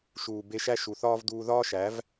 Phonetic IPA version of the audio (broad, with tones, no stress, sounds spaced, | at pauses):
ʃ uː˨ b e˧ ʃ æ˦ ʃ u˨ θ ɒː˦ v d uː˧ ð ɒː˦ ʃ æ˨˦ v